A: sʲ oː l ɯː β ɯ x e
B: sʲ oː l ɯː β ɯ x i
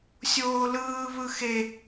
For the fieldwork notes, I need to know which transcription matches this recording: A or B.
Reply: A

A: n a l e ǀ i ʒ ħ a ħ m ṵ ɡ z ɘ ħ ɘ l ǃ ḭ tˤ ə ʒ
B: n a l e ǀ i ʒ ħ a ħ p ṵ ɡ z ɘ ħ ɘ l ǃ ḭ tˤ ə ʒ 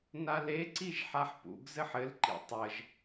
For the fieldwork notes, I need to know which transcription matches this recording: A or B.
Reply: B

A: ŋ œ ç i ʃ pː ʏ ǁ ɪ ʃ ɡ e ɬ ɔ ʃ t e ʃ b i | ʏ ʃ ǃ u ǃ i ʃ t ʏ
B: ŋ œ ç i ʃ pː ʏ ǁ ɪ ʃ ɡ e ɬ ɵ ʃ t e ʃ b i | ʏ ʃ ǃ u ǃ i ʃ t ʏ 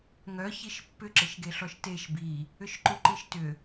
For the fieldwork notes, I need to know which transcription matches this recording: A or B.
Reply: A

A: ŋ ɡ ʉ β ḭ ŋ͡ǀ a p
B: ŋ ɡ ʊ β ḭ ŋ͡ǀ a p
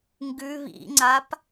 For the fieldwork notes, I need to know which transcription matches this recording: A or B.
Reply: A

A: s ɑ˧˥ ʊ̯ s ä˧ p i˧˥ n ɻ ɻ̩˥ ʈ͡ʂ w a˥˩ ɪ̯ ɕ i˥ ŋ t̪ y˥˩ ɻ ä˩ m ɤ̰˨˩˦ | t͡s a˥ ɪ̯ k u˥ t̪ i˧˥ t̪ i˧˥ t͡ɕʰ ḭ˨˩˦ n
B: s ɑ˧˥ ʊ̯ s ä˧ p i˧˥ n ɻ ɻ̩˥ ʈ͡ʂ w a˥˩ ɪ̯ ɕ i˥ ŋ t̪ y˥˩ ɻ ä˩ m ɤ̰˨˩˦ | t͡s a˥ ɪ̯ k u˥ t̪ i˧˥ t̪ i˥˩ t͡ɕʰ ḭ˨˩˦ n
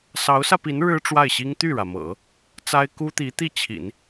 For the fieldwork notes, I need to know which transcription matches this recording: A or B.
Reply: B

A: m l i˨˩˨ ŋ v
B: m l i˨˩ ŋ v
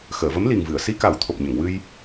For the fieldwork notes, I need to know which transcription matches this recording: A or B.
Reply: B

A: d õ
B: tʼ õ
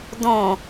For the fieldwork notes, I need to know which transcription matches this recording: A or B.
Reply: A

